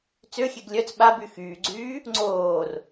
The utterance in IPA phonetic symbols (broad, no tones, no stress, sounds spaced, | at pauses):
t͡s ø xʲ e ɡ lʲ œ t͡s ɓ a b y x yː ɡ͡ǀ yː | ŋ͡ǀ oː r